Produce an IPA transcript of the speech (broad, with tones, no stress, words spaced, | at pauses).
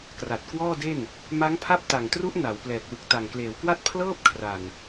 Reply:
kra˨˩t̚kwɔː˥˩de˥˩n | ma˦˥ŋpʰa˦˥p̚ta˨˩ŋtru˦˥ʔ na˩˦w plɛː˨˩k̚wɯ˨˩k̚ ta˨˩ŋkleː˩˦wkwa˥˩t̚ pʰlɤː˥˩p̚kʰra˨˩n